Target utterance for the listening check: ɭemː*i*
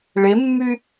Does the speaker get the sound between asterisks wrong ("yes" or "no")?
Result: yes